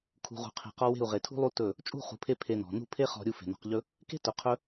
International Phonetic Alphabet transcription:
kʰṳ˨ ʁṳ˨qʰe̤˨qɔ˧ we̤˦˨u̯ʁe˨tʰṳ˦lˠu˦ tɵ˦˨ | t͡ʃʼṳ˦˨χṳ˨pʰe˧ pʰe˧nɔ̤˨ nṳ˦˨pʰe˦χɔ̤˧ɾʲu˧ fe̤˨nɔ̤˧qʎɵ˦ | ke̤˦tʊ˨qʰɵ˧

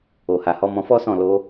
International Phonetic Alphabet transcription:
o˨ha˨hɔ˨˦ mɔ̃˧fɔ˦sɔ̃˦˨ lo˧

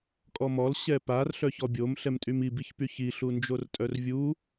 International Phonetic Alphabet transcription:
kʼɔmɔl ɕɛpar ɬœçɔbʲom ɬɛmtʼymi biçpyçi ɬund͡ʒortʼœrvʲu

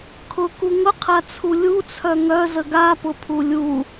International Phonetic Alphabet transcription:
kʰʊku ŋʊqʰat͡sʰu lʲut͡sʰœ ŋœzə ɡapʊpʰu lʲu

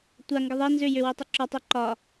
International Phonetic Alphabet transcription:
tʷaŋɡə ðˤe nzʏ jʏwetˤʉ ǁɒtˤo ǃɒ

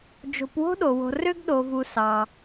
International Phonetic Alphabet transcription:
d͡ʒo̤˨pwo̤˦ɗo˩wo̤˨ rø˦ɡɗo˨vu˨ sɑ˩

